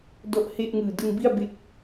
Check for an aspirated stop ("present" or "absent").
absent